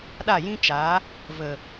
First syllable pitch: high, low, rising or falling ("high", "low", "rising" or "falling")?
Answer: falling